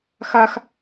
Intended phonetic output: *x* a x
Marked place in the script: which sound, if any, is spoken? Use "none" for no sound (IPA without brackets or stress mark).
x